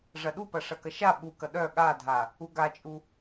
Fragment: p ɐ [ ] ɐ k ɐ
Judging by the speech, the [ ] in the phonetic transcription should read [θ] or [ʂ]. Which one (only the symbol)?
ʂ